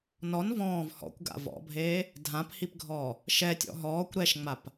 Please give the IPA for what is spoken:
nɔn vɔ̃ːv hɔ̰kʷɡa̰ vɔ̰bʱeː | dʱãphipɡʱɔː | ʃɛtʲɔ̰ ɦɔːkʷ ɾɛʃŋ͡map

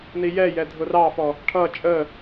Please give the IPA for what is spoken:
nijɛ jɛdʱʊrɑfɔ | ʈʰʌ t͡ʃʼə

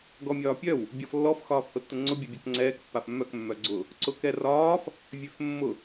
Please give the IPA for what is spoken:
ɡɔmʲɒːpʲœw | bʲɔflːɔf xɒːfhʊtːʊŋ͡ǀʊ bʲɛbʲøkŋ͡ǀɛːk pːafmːœk mːœɡ͡ǀʊ | ǀʊkɛrɒːf | vʲøfmːʊ

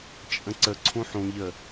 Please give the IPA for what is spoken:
t͡ʃʼə̃ǀəǀʰũ ħũʎə

